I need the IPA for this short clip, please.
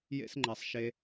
j ḛ˦ s ŋ͡ǃ ɛ˧ sˤ ʃ e˧

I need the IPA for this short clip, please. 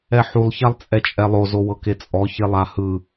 ɛ ħ u lˠ ç a lˠ t͡sʼ ɛ t͡ʃʼ ɛ lˠ o z o w ɤ k e t͡sʼ ɔ ç e lˠ a h ɯ

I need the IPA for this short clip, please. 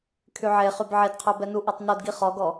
kʰ y ʕ e χ y b ʕ e d qʰ œ b ɛ n u ʔ o tˤ n o d ɡ i χ ɔ ɡ ɔ

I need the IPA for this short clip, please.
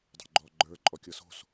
dˤ o̤ ɡ͡ǃ ɔ ɡ͡ǃ ə˞ ǃʼ ɔ kʲ ɤ s o̤ s

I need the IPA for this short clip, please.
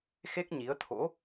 x e˦˥ k̚ ɲ i˨˦ ə̯ t̪ʰ o̰˧˥

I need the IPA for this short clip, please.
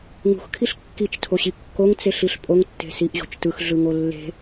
ŋ ṳ x kʰ i ɬ kː i t͡ʃ tʰ o ɕ i kː o ŋ t͡s e ɬ i ɬ pʼ o ŋ tː e̤ s i ʔ ʑ o̤ t͡ʃ t ɯ x ɮ ɯ ŋ o lː e̤

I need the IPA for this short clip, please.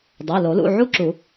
dˤ æ˩˧˩ l o˨˩˦ l ṵ˩˧˩ ʕ u˥˧ ǁ u˨˩˦

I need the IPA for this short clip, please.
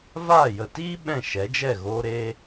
v aː˦˨ j ə˨ t iː˦ ɓ ɛ̃˦˨ ʃ ɛ˨˦ d͡ʒ ɛ˦˨ ɣ oː˦ ɾ e˦

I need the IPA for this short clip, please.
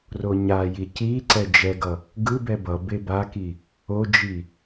r o ɲ a j i c i ǀ ɛ d͡ʒ ɛ ɡ ʌ | ɡ ɯ b ɛ b ʌ b e b a k i | o d͡ʒ i

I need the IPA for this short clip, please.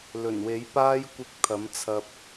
l ɵ˨˩ n w e˨˥ j p aː˧ j kʷ ɪ˨˥ k̚ t̪ʰ ɐ˨˥ m t͡sʰ ɐ˧ p̚

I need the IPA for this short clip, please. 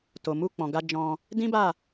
t o˨ m u˧ k͡p ɔ̃˨ ɡ a˧ d͡ʒ ɔ̃˧ | d ĩ˦ b a˦˨

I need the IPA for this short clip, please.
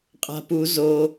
qʼ a̤ p u z o

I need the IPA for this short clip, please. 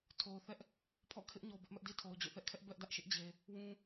tʰ o˨ ʊ̯ θ ɛ˦ ʔ | pʰ ɔ̰˦˨ kʰ ɪ˦ ʔ ɲ o˨ b ɪ˦ ʔ m ɛ˦ ʔ d i˦ tʰ o˨ ʊ̯ d͡ʑ o̰˦˨ θ ɛ˦ ʔ kʰ ɛ˦ ʔ b ɛ˦ ʔ d ä˦ ʔ ʃ ɪ˦ ʔ d͡ʑ e˨ | w ũ˦

